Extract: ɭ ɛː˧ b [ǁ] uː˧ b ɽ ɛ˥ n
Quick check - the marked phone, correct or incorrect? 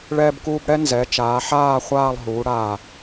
incorrect